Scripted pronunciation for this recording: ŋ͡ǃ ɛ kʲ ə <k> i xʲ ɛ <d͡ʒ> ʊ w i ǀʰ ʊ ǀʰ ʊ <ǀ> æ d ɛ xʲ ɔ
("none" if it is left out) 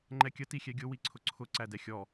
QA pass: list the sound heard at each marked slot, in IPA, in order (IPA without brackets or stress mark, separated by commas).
t, ɡʲ, ǀ